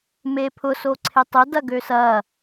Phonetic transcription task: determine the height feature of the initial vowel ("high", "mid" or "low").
mid